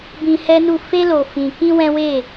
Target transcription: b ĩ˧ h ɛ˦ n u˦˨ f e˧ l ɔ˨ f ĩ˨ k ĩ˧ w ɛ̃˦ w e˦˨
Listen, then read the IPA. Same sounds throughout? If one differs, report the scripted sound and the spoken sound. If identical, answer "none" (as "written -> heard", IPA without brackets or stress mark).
ɔ˨ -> o˨